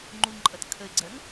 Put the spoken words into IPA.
ŋ͡ǃ u ŋ ǃʼ ʌ t kʰ ə ɪ̯ ɡ͡ǀ ɜ ŋ

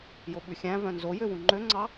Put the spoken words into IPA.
j o ɓ ʉ xʲ æ̃ v œ̃ n z o j ø w ũ ŋ͡ǃ ø ŋ͡ǀ ɑ

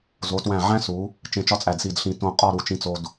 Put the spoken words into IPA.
z o˩˧ t w æ̃˧˩ ʕ æ̃˥ s u˩˧ | t͡ʃ ẽ˧ t͡ʃ ɒ˥ t͡sʼ æ˧˩ d s i˧˩ d ɬ ĩ˧˩ t õ˧˩ qʼ ɒ˥˧ ɾ u˧˩ t͡ʃ ĩ˧ t͡s o˧ d

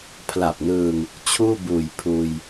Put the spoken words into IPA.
pʰ l a˨˩ p̚ n ɯː˧ ŋ | t͡ɕʰ uː˥˩ b uː˨˩ j pʰ uː˧ j

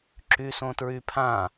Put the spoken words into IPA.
ǁ y s õ t ɹ y pʰ ã

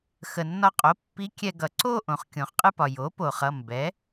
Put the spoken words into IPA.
x ə˩ nː ɒ˧ qʼ o˩˥ pː i˧˥ kʲ ɛ˧ ɡ ʌ˩ ǀ o˥˧ ʔ õ˩ χ kʲ õ˩ χ qʼ ɨ˧ p ɒ˩ j o˩˥ p o˩ χ ʌ˩˧˩ m b ɛ˩˥

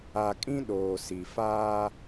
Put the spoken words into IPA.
a˨ kʼ ĩ˦ ɗ oː˨ s i˨ f aː˦

